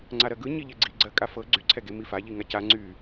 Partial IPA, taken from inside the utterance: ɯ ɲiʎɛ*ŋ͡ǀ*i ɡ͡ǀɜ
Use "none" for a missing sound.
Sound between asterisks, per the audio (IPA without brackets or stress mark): ɡ͡ǀ